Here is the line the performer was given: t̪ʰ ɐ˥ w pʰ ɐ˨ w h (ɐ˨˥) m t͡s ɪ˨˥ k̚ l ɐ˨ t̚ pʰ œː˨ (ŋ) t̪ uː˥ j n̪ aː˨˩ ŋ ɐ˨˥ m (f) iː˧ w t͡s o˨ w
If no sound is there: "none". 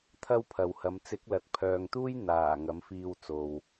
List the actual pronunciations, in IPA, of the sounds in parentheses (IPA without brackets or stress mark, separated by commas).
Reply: ɐ˨˧, ŋ, f